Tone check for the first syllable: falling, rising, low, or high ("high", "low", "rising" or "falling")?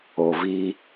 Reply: low